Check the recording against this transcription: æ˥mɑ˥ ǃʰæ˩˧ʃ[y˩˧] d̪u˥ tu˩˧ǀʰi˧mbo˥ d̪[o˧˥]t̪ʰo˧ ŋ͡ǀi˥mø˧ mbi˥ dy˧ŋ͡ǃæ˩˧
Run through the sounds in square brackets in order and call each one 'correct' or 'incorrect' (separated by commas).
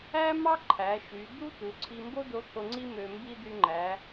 correct, correct